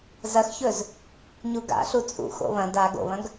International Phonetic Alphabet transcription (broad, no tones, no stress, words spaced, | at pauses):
zɐxçɵz | ɲuɡa̰ ɬut͡sʼṵ xo̰βɐ̃ da ɡo̰βɐ̃ɡ